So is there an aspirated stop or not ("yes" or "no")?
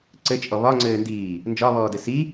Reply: no